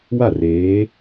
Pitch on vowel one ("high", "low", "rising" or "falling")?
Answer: falling